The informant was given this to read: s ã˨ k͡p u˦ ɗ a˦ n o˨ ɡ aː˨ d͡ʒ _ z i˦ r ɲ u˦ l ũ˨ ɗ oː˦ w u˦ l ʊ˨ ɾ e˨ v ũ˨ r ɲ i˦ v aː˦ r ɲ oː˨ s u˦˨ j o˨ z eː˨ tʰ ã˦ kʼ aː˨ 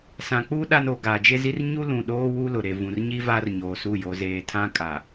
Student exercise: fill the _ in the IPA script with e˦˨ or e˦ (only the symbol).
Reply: e˦